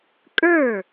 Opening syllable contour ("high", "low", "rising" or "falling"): falling